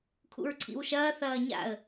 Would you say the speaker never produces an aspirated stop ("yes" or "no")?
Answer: no